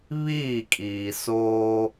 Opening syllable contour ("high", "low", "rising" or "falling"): falling